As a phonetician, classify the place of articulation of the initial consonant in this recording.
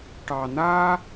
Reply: retroflex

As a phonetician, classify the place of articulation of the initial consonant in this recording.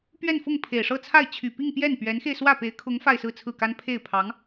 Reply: labial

